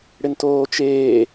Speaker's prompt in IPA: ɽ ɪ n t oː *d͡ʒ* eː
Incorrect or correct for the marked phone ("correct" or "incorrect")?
incorrect